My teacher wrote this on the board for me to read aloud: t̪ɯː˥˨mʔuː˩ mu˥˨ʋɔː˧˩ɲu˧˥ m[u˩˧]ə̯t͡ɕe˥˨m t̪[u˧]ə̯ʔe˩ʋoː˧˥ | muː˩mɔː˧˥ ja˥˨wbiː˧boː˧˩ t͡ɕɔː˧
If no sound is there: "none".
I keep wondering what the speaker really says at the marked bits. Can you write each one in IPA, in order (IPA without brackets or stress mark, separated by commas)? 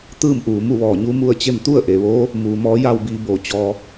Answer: u˥˨, u˥˨